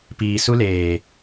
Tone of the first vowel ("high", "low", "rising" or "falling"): low